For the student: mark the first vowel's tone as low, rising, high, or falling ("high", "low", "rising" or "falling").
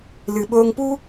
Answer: low